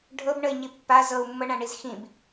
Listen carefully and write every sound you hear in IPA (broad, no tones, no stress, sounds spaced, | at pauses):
ɖʱ ɤ b ɳ ə i̯ ɲ i pː a z ɤ u̯ mː ɤ ɳ ã ɳ i z x ĩ b